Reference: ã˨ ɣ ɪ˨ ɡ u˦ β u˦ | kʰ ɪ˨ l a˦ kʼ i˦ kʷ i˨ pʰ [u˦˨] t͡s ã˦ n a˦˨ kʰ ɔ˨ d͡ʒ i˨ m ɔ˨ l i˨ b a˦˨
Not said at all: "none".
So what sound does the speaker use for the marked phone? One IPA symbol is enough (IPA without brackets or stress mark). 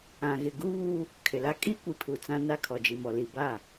u˨